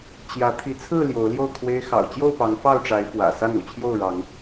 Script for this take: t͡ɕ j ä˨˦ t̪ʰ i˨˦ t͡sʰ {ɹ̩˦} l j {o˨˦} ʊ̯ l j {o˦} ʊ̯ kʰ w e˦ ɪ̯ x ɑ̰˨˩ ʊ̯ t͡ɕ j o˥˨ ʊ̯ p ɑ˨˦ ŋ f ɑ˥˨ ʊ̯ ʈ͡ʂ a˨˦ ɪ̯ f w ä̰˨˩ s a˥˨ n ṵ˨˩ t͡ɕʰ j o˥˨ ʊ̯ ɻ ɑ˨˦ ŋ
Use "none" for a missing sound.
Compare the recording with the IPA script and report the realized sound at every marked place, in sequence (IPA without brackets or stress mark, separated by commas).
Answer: ɹ̩˥˨, o˨˦, o˥˨